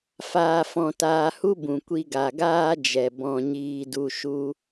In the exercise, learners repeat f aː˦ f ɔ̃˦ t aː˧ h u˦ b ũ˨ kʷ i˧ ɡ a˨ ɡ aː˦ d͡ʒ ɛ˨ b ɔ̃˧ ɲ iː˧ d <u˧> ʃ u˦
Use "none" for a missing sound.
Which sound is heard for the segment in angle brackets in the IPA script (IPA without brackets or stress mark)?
u˧